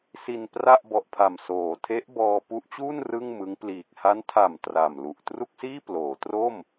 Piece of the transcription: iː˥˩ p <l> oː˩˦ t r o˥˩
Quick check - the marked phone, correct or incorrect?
correct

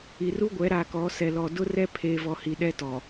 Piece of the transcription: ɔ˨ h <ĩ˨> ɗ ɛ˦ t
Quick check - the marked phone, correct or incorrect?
incorrect: i˨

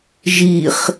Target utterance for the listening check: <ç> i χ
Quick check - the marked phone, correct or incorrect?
incorrect: ʒ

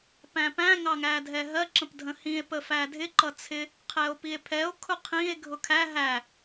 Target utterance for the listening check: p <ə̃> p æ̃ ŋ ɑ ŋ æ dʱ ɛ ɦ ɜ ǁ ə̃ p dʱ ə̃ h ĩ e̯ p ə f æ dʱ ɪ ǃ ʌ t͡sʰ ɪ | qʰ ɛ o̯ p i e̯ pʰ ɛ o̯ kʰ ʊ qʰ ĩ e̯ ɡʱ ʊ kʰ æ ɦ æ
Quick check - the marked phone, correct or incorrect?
incorrect: æ̃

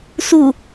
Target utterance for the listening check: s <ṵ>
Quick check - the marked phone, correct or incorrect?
incorrect: u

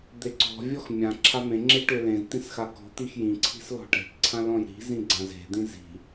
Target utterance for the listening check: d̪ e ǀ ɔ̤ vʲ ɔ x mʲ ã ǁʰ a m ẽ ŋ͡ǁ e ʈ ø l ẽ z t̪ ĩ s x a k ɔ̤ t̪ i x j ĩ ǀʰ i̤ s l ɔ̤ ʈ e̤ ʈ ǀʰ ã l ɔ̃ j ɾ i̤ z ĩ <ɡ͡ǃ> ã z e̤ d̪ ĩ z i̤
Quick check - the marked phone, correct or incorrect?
incorrect: ɡ͡ǀ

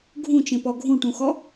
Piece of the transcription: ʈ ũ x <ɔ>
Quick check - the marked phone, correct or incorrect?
correct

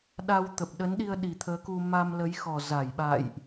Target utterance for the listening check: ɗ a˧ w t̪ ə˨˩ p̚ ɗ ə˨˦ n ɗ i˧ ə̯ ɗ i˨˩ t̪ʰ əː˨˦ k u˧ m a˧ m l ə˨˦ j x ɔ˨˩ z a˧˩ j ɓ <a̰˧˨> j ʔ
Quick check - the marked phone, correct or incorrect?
correct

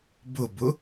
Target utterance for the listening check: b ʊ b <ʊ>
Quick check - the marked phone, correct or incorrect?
correct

